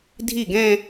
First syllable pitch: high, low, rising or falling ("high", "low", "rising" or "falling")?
falling